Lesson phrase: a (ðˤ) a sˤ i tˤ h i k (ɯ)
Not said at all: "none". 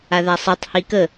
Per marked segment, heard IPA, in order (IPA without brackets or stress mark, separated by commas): ð, ə